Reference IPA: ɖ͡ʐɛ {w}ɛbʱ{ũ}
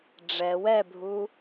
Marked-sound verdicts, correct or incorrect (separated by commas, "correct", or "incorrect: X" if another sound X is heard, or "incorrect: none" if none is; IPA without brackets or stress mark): correct, incorrect: u